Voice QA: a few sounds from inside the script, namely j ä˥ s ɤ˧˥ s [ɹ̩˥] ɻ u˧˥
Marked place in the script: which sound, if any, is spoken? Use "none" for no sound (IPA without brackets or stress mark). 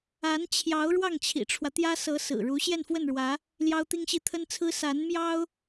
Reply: ɹ̩˨˩